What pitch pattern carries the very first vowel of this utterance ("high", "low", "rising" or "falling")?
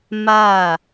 falling